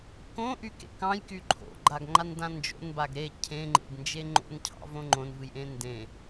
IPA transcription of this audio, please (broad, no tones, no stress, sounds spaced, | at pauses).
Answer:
k õ ʔ y k ḛ k ɑ̃ j k y ǃʰ o̰ ɡ͡ǃ a ɡ ŋ͡ǃ a n d ã n d͡ʒ o̰ n b a ɡ ɾ e cʰ ẽ ŋ͡ǃ ḛ ɡ n d͡ʒ e ŋ͡ǃ o̰ n cʰ ɑ̰ v õ ŋ͡ǃ õ n v ɨ j ʔ ẽ n d ẽ